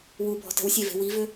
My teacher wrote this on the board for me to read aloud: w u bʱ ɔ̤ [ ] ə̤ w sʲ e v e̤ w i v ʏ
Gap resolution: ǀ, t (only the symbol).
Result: t